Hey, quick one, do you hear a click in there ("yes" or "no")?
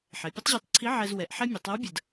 yes